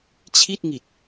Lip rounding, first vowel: unrounded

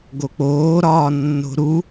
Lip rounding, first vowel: rounded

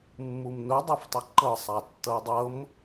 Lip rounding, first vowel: rounded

